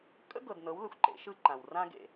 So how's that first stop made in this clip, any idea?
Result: ejective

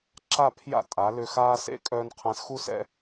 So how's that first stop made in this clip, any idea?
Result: click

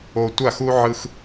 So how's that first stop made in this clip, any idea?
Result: plain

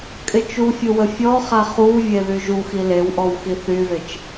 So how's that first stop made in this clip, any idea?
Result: ejective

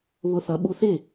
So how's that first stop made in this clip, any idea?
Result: implosive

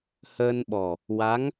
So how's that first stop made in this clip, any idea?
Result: implosive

